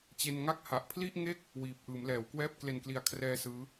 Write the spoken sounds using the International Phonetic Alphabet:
t͡ɕ e˧ n ŋ a˥˩ k̚ h a˨˩ ʔ pʰ l i˥˩ ʔ ŋ e˥˩ k̚ | w iː˨˩ p̚ ʔ ɯː˩˦ m l ɛː˩˦ w k w ɛː˥˩ p̚ k l e˨˩ n k l i˩˦ a̯ kʰ r ɛː˦˥ s ɯː˦˥

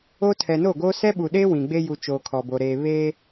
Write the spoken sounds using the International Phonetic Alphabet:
o˦ tʰ ɛ˨ n o˦˨ ɡ oː˦ s ɛ˦ ɓ u˨ ɗ eː˦ w ĩ˨ ɡ͡b e˦ j u˨ t͡ʃ oː˨ kʰ ɔ˨ b o˨ ɾ eː˨ β eː˦

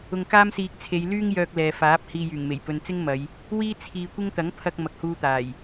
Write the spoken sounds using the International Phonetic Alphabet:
ʊ˧ ŋ k aː˥ m s iː˧ k̚ t͡sʰ e˨˧ j l yː˥ ŋ j œː˧ k̚ l ɛː˨ f aː˨˥ p̚ h iː˧ j yː˨˩ ŋ m e˨˩ j p ɵ˨ n t͡s ɪ˥ ŋ m ɐ˨˧ j | w iː˥ t͡sʰ iː˧ kʷ ɪ˥ ŋ t̪ ɐ˨˥ ŋ pʰ ɐ˧ k̚ m ɐ˨ k̚ h uː˧ t̪ aː˨˩ j

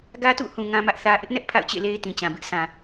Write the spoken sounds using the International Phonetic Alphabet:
ɡ ä˦ t ṵ˦˨ h ũ˨ ŋ ã˦ m ä˦ ʔ θ ä˦ ʔ ɪ˦ ʔ n ɛ˦ ʔ pʰ a̰˦˨ ʊ̯ t͡ɕ ḛ˦˨ l e˦ ɪ̯ t ĩ˨ t͡ɕ ã˨ b ɪ˦ ʔ sʰ ã˨

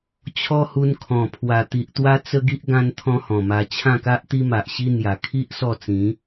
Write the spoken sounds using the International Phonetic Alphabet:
t͡ɕʰ ɔ˦ h u˧ n kʰ ɔ̃˨˩ pʰ w a˨˩ t̪ i˨ ʔ t̪ w a˦ t͡s ə˦ ɡ i˦ ʔ ɡ ã˦ n t̪ʰ ɔ̃˦ h ɔ̃˨˩ m a˧ t͡ɕʰ ã˥˧ k a˦ ʔ t̪ i˦ m a˨ ʔ ɕ i˦ n̪ j a˨˩ kʰ i˦ ʔ s ɔ˥˧ t͡s ĩ˨˦

